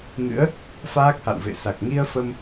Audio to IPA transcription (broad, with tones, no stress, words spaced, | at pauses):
ŋɨ̰˧˥ə̯ | faː˦˥k̚ha̰˧˨wvḛ˧˨sa˨˩k̚ ŋi˧ə̯fə˧m